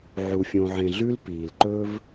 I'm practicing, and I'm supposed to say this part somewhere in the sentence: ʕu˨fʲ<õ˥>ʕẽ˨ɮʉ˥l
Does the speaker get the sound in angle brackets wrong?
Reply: yes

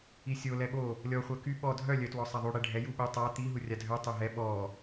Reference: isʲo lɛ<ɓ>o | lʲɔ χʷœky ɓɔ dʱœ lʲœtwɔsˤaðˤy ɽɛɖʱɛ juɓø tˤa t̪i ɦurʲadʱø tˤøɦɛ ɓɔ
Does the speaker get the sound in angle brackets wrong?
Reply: no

